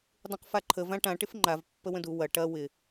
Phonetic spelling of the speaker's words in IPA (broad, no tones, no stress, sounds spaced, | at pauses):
dˤ ũ q f a ǃʰ ə v ã ʈ ã ʈ ɪ f ŋ͡ǃ a v pː ə w ə̃ d u w ɐ ʈ ɐ w ɪ